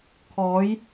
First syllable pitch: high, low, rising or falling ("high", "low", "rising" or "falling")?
rising